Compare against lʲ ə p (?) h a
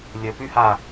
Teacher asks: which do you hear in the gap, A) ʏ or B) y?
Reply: B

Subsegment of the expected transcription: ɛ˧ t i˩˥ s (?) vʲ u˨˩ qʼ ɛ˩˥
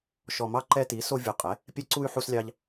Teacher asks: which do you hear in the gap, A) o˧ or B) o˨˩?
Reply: A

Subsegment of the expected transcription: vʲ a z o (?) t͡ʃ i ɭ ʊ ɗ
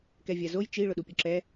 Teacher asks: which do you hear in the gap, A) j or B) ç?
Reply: A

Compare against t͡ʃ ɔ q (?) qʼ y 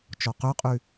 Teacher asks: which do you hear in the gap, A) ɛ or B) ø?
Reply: B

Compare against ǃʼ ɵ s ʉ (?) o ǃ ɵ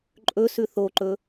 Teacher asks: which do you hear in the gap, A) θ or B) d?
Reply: A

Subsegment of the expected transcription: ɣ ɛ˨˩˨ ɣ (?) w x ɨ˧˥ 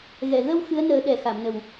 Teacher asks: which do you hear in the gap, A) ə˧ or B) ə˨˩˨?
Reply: A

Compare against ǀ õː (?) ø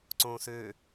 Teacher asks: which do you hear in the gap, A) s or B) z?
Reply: A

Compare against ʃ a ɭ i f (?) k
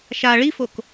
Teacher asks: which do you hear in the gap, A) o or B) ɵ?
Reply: A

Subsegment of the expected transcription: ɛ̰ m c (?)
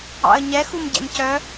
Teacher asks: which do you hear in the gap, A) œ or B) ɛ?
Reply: A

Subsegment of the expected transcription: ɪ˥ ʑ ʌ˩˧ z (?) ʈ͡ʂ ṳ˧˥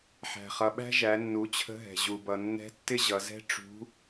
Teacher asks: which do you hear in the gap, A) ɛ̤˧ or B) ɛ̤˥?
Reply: B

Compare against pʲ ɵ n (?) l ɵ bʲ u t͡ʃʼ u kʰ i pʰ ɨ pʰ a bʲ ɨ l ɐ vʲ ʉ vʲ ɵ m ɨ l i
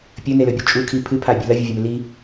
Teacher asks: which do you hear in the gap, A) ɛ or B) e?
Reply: B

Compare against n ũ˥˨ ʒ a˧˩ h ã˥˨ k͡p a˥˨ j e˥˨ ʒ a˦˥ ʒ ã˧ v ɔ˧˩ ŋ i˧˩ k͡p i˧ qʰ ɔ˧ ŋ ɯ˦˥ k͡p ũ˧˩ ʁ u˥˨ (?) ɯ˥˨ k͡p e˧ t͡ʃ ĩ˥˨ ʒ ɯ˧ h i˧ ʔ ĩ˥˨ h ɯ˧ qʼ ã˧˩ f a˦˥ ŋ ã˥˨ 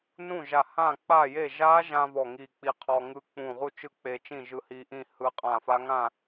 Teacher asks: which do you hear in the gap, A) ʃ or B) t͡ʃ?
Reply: B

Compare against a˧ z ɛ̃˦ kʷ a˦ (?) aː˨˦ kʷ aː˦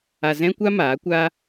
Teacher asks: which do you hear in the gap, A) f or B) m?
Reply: B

